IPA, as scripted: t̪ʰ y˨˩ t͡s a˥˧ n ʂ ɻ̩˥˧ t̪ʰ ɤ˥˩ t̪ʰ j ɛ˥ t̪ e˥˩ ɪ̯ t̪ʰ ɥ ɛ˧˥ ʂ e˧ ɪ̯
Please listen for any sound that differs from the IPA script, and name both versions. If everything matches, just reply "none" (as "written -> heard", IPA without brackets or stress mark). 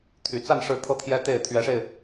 none